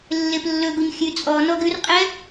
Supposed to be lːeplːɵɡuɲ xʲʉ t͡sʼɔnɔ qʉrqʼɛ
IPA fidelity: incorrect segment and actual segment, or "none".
q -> ɡ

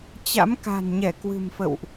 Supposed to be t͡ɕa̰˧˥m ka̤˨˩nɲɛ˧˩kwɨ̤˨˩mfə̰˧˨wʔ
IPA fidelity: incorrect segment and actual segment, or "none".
none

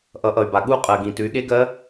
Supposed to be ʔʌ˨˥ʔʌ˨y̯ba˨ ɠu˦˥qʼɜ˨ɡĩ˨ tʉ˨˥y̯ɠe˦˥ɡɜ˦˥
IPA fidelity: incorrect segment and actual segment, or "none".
none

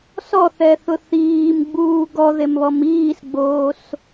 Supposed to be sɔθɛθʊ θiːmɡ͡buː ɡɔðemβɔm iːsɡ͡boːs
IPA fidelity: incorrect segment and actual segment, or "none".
none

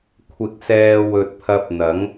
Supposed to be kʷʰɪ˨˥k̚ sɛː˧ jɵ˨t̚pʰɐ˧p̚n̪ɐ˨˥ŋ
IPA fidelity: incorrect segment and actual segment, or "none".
j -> w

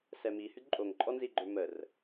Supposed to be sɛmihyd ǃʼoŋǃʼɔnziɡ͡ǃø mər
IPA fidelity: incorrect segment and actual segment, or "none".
none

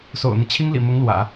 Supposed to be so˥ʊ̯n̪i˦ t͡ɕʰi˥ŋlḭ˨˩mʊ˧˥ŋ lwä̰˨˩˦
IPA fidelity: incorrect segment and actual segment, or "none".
o˥ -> o̰˨˩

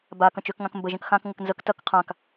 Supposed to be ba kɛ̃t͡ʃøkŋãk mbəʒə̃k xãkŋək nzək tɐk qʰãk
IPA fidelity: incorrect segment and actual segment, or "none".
ɛ̃ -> ə̃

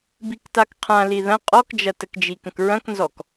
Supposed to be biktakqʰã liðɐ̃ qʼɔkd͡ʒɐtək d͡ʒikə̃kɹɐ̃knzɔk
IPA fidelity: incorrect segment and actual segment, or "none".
none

